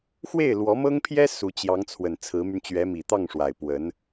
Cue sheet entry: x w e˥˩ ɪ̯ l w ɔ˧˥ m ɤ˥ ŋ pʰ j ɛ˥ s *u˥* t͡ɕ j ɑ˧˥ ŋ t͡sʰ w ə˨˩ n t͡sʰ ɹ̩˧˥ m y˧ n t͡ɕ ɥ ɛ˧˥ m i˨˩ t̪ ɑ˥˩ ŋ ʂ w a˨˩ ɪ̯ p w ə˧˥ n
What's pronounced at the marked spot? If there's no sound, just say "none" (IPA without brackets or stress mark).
u˧˥